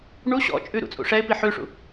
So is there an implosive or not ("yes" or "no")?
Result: no